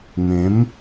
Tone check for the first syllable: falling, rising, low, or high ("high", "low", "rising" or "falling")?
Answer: rising